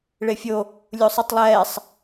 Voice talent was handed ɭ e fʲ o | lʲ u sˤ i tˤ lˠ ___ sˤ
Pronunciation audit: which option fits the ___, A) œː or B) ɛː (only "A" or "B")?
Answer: B